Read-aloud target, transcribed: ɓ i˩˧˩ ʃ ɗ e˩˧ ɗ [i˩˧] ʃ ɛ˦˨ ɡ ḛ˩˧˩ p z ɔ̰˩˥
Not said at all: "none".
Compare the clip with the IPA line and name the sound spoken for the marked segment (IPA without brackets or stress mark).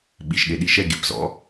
i˩˧